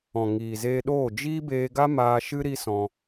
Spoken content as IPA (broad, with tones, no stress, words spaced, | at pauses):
ɔ̃˨ŋiː˨zeː˧ɗoː˦˨ d͡ʒiː˦beː˧ɡa˦maː˧ ʃɨ˦ ɾi˦sɔ̃˧